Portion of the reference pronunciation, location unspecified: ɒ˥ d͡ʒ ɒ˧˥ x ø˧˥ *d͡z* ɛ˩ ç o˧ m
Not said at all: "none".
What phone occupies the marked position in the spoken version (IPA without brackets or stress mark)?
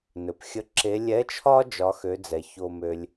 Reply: d͡z